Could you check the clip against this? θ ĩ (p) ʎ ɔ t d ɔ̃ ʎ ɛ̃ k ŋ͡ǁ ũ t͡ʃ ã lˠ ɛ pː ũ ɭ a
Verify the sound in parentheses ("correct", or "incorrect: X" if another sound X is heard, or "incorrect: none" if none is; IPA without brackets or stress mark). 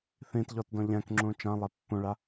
incorrect: t